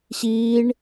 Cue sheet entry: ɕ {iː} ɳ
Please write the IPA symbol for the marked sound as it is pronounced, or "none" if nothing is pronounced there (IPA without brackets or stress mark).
iː